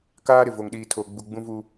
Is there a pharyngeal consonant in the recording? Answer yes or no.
no